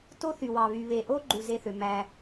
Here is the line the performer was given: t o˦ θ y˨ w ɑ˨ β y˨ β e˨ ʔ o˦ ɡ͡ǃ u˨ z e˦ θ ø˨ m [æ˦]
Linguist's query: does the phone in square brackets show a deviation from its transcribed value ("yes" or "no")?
no